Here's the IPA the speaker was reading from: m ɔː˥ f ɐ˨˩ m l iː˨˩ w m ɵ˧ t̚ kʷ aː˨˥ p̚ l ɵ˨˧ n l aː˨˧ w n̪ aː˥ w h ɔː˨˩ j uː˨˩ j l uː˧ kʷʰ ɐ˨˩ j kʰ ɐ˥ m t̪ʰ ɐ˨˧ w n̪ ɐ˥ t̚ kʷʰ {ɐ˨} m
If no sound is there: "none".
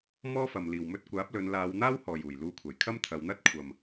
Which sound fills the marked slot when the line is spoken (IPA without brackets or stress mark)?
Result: ɐ˨